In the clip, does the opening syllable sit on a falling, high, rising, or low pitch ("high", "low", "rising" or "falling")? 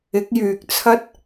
rising